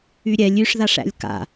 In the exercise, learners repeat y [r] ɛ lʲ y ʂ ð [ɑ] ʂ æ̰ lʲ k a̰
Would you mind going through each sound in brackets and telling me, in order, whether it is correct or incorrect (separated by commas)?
incorrect, incorrect